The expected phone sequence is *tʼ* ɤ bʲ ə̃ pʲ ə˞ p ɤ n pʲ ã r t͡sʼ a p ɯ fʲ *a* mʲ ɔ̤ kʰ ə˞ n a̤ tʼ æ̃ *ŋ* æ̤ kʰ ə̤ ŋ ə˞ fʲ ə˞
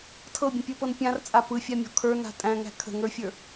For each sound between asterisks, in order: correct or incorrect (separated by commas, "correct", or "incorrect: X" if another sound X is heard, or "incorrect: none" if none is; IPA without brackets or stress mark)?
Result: incorrect: tʰ, correct, correct